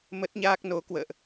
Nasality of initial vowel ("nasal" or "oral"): oral